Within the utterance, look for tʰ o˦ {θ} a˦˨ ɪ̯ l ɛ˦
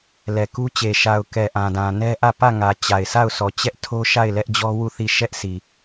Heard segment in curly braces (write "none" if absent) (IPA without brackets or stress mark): ʃ